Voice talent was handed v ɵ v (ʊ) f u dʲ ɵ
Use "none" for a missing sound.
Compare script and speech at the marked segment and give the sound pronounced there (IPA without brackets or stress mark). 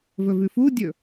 ʉ